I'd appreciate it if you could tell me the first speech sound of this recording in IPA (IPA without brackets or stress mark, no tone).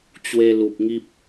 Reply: t͡ɕ